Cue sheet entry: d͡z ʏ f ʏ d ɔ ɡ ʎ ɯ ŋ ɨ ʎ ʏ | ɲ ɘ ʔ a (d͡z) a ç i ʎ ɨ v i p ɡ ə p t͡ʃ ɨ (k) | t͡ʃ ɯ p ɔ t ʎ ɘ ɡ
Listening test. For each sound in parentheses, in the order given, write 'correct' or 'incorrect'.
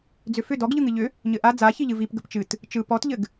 correct, incorrect: t

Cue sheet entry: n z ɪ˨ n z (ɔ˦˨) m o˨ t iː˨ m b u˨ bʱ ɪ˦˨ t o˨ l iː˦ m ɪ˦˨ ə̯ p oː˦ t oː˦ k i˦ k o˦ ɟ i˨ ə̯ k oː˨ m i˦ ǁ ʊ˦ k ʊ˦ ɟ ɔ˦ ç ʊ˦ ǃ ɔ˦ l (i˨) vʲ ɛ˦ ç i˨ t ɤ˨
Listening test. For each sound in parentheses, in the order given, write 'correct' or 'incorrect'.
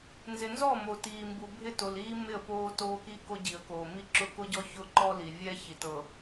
correct, correct

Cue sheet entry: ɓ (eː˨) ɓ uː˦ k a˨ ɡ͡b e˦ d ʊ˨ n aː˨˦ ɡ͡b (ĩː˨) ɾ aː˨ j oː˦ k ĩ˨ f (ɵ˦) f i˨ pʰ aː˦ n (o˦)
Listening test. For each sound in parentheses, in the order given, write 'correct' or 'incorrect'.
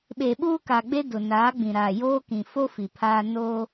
correct, incorrect: ĩ˨, incorrect: o˦, incorrect: oː˦

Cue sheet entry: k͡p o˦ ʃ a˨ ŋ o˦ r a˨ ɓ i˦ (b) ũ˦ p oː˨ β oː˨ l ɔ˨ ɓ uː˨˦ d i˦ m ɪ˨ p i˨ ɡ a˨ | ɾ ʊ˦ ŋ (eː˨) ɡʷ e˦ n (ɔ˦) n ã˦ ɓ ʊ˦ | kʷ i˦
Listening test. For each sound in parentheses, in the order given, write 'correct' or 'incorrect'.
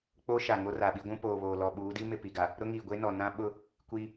incorrect: ɡʷ, incorrect: iː˨, incorrect: ɔ˨

